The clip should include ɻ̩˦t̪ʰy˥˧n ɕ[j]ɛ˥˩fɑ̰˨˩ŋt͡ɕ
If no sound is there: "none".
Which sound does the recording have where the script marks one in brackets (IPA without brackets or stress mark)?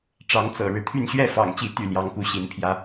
ɥ